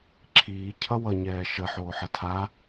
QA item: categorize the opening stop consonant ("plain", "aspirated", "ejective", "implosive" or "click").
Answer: click